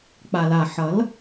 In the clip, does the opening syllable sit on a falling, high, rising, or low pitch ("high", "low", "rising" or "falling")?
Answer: low